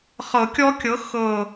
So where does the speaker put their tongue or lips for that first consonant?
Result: uvula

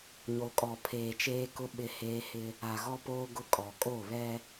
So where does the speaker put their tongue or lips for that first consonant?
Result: palate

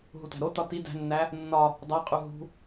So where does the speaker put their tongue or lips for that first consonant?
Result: throat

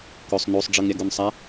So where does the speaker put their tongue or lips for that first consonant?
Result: velum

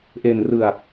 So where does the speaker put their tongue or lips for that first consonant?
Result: throat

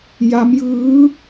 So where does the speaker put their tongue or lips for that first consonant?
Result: palate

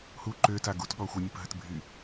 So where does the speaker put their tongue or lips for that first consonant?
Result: throat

